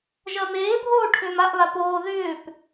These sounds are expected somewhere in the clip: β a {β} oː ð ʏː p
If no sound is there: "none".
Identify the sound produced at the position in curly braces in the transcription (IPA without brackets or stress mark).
p